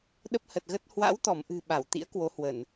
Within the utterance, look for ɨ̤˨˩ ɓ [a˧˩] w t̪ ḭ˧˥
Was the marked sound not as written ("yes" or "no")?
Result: no